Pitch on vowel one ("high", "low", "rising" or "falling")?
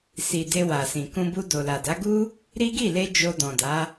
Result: low